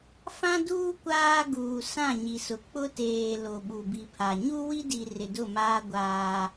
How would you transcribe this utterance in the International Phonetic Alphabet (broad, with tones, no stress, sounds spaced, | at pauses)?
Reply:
f ã˦ d uː˦ kʷ aː˦ ɡ uː˨ s ã˦˨ ɲ i˨ s ʊ˨ k͡p ʊ˦ t eː˨ l o˨ ɓ u˨ b i˨ pʰ a˨ ɲ u˦ w i˦ d i˨ r ɪ˨ d ʊ˦˨ m aː˦ ɡʷ aː˦